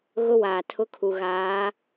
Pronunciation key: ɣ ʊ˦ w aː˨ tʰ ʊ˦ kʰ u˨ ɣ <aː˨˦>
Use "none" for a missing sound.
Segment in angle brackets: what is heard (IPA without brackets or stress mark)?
aː˨˦